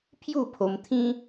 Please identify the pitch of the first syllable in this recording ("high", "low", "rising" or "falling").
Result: falling